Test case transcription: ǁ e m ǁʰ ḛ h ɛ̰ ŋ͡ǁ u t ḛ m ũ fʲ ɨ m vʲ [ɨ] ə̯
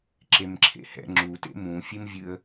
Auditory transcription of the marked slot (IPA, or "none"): ɨ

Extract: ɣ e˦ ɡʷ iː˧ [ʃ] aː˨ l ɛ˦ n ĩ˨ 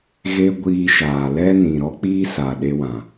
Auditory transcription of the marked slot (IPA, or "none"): ʃ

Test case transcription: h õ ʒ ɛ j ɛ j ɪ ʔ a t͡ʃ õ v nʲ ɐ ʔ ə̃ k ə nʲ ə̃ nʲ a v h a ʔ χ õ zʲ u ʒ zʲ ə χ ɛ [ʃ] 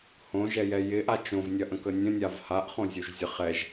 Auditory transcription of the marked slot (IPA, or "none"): ʒ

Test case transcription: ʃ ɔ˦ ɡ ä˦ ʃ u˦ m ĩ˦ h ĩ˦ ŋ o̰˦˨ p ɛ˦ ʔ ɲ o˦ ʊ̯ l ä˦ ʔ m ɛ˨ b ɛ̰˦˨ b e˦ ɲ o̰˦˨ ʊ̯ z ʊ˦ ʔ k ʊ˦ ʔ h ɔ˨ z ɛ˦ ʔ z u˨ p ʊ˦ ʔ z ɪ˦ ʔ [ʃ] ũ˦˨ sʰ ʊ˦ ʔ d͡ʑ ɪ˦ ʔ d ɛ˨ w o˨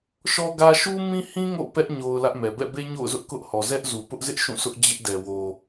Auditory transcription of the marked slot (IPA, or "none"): ʃ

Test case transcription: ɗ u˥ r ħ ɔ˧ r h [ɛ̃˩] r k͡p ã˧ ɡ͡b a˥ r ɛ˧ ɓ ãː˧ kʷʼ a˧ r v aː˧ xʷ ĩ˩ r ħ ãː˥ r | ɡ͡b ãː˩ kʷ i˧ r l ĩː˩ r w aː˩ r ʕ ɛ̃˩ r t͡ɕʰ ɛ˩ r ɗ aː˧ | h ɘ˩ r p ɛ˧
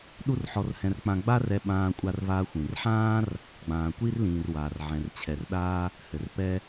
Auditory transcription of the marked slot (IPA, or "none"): ɛ̃˧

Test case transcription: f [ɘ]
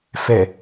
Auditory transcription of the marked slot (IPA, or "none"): ɛ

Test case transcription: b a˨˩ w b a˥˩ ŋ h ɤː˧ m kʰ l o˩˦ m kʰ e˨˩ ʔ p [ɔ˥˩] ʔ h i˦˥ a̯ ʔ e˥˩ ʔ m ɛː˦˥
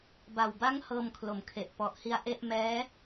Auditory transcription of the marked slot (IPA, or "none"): ɔ˨˩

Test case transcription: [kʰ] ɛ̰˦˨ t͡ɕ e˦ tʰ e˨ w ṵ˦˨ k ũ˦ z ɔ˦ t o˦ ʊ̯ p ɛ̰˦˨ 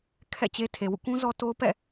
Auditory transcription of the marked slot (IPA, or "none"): kʰ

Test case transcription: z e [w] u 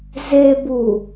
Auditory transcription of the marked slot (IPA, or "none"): b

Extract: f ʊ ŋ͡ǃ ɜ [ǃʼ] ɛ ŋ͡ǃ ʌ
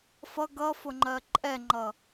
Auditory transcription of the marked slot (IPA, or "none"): ǃʼ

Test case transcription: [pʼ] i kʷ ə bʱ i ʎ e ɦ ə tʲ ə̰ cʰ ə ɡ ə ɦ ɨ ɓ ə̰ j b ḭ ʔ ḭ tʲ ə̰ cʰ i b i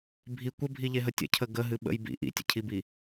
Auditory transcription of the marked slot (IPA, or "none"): bʱ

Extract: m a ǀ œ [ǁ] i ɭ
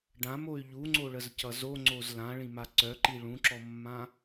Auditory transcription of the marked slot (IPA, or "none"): ǃ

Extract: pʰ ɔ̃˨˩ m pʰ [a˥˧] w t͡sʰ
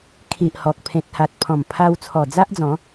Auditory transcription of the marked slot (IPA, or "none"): a˧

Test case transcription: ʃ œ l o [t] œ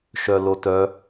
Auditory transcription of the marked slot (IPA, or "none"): t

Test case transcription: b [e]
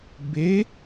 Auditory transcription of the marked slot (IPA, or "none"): e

